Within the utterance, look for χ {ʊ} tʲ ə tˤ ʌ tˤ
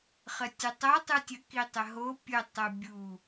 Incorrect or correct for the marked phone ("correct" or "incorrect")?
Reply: incorrect